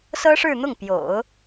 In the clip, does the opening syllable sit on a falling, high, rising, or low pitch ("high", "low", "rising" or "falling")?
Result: high